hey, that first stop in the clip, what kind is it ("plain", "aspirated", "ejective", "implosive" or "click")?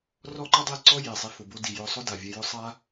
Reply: click